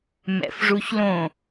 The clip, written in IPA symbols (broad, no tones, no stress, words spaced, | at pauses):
mɛ̰fʐuçlõ